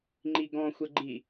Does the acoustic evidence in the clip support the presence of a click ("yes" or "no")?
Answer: yes